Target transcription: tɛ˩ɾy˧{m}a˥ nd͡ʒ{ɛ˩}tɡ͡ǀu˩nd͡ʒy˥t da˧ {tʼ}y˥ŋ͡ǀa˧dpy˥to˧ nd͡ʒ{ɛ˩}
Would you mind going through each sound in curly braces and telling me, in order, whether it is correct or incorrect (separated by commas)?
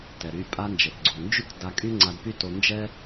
incorrect, correct, incorrect, incorrect